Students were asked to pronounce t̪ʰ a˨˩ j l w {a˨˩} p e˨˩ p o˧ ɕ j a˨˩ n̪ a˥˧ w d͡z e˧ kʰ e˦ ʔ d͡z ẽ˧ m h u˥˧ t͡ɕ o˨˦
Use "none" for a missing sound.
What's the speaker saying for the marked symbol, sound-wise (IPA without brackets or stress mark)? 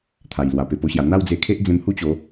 a˨˩